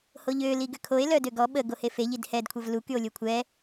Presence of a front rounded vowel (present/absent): present